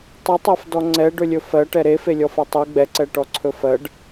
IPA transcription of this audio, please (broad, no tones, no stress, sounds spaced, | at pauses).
tˤ ɵ tˤ ɜ f d ɔ ŋ͡ǀ ɛ ɖ ɵ lʲ ɵ f ɜ ʈ ɛ ɾ e f e lʲ ɔ f ɜ tˤ u ɡ͡b ɛ ǀ ɛ ʈ ɔ ǀʰ ɵ f ɜ ɖ